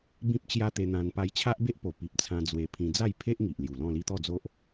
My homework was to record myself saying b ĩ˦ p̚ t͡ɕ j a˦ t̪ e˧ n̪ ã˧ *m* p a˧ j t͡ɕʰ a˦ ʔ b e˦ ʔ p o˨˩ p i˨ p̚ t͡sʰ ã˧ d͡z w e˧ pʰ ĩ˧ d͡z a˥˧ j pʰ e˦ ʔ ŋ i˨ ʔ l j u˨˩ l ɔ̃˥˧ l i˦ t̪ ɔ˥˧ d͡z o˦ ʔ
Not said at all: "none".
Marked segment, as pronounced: n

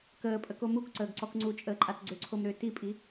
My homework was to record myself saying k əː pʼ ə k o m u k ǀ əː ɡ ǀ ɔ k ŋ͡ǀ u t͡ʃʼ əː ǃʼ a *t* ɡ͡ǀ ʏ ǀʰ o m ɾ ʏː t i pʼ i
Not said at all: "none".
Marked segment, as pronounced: t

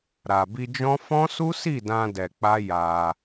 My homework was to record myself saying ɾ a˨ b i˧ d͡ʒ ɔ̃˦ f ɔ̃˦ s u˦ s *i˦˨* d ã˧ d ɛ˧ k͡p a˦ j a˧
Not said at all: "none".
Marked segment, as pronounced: i˦˨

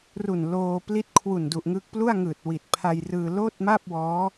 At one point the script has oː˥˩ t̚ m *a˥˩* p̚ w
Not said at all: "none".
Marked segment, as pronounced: a˥˩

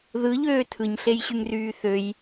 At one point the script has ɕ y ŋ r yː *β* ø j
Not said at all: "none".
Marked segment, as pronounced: θ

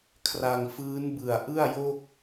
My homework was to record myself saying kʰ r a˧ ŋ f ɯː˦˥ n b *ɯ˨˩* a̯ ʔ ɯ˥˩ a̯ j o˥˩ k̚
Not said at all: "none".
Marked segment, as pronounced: ɯ˨˩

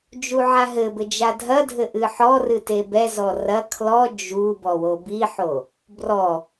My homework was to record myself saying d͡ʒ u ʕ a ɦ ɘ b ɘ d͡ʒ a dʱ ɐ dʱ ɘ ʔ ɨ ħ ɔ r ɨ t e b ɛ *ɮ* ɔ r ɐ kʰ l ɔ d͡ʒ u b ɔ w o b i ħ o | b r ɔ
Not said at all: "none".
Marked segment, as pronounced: z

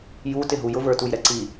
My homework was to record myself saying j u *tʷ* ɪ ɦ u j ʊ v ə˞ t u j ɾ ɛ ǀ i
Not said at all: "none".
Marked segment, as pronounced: t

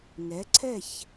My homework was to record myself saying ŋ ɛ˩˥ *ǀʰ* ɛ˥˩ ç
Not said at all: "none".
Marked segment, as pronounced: ǀʰ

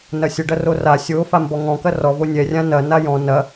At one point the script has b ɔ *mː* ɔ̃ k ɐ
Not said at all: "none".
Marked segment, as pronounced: ŋ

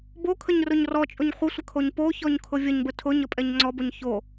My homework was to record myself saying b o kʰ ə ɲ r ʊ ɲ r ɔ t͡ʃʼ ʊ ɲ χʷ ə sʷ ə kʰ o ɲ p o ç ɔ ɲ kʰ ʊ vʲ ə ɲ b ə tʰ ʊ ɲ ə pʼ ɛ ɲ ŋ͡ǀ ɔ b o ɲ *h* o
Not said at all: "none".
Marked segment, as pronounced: ç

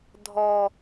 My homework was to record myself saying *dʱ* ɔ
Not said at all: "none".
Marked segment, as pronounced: dʱ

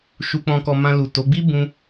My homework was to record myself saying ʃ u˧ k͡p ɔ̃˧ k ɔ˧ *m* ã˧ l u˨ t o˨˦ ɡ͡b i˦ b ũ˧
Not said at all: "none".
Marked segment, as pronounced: m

